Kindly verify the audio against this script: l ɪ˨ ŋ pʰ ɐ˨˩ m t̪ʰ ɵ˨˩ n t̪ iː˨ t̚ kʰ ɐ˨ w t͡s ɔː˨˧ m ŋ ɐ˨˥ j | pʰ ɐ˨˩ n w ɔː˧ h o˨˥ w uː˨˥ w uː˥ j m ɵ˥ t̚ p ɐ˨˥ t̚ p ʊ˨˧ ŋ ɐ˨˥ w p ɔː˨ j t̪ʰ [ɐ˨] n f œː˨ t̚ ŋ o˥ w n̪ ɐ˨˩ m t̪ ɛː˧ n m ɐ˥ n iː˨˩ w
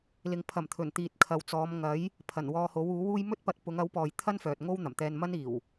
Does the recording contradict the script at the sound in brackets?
yes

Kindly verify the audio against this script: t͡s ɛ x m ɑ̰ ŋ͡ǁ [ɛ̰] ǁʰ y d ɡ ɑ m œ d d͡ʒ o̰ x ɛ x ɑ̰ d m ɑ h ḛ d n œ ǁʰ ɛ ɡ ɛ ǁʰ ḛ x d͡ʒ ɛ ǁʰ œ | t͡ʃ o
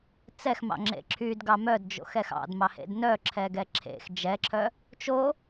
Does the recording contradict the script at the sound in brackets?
yes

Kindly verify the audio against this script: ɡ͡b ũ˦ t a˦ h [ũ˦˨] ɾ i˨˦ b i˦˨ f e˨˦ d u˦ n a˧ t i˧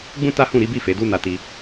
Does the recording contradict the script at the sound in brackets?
no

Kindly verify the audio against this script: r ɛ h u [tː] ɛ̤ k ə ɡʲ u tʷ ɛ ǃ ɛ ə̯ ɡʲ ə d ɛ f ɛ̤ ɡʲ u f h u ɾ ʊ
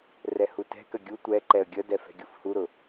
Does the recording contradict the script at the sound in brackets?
yes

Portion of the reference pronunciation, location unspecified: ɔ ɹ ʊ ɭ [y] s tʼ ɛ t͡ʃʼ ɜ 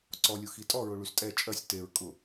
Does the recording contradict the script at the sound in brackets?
no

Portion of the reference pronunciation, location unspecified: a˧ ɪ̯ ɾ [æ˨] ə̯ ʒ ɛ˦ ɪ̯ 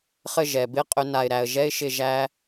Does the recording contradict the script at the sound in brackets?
yes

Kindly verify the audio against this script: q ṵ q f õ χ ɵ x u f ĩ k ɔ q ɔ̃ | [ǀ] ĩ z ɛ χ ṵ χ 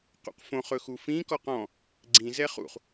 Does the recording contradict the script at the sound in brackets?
yes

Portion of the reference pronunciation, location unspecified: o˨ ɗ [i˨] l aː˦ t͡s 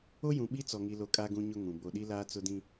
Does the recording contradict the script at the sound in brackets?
yes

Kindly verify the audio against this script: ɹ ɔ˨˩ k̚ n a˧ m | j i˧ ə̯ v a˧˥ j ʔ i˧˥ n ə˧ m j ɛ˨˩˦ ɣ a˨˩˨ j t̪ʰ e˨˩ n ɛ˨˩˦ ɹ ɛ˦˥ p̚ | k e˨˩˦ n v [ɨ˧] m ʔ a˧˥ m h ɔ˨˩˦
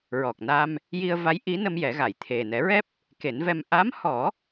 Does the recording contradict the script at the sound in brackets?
yes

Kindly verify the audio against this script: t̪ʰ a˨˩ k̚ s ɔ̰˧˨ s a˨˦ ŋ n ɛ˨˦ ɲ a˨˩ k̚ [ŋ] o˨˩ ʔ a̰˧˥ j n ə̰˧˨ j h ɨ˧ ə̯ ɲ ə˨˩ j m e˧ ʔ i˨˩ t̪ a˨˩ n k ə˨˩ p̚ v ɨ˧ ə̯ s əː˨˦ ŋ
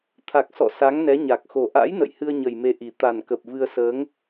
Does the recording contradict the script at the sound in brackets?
yes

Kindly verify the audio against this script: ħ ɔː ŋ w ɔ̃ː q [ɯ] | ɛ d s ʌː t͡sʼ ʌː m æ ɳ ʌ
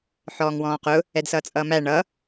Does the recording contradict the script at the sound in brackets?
yes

